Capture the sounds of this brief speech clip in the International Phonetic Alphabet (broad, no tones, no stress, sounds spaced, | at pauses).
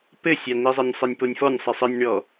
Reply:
p ɘ sʲ a n i zˤ e nʲ sˤ i nʲ p o nʲ f ɔ nʲ sˤ i sˤ ɘ nʲ ɳ ɔ